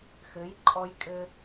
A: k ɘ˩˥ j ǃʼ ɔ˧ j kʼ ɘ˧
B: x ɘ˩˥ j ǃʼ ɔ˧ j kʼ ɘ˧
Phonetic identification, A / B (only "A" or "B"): B